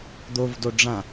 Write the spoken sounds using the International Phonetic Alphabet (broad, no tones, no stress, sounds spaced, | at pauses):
d̪ o v d o ɖ͡ʐ ã